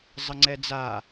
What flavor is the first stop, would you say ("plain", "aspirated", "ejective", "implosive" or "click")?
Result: click